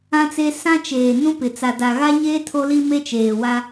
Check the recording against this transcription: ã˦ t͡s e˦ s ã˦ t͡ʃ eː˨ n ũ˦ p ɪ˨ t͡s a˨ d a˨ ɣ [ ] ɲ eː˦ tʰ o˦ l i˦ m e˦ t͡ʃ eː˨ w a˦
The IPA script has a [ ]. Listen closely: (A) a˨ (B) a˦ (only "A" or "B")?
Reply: B